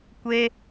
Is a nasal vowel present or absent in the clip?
absent